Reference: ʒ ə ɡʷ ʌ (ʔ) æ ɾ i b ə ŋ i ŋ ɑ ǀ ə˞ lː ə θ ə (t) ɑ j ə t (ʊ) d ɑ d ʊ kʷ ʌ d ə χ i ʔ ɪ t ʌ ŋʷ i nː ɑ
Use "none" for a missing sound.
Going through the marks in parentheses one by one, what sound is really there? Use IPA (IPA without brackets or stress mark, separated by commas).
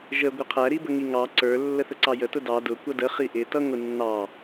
qʰ, ǀ, ʊ